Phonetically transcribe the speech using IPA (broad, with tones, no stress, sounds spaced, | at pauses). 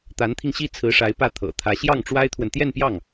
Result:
t̪ a˧˥ n t̪ʰ i˧ ŋ ɕ i˥˩ t͡sʰ ɹ̩˧˥ ʂ a˧˥ ɪ̯ p ä˥˩ t̪ʰ ɤ̰˨˩ t̪ʰ ä˧˥ ɕ j ɑ˥˩ ŋ ʈ͡ʂ w a˥ ɪ̯ t̪ʰ w ə˨ n t̪ j ɛ˥˧ n p j ɑ˥˩ ŋ